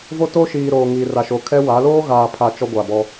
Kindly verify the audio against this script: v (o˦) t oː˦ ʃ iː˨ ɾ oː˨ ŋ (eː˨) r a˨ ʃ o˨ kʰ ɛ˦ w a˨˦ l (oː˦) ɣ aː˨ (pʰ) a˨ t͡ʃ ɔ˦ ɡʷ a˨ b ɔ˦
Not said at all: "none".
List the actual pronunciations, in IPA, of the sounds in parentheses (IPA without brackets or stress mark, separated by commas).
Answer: o˦, iː˨, oː˦, pʰ